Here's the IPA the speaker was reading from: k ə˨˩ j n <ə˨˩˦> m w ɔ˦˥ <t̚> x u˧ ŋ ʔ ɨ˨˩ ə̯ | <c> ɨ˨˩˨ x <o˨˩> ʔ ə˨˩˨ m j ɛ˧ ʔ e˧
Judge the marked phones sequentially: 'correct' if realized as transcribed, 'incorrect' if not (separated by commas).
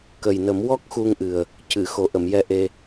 correct, incorrect, correct, correct